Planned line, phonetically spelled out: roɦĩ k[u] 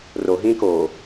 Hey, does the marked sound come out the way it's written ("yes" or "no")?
no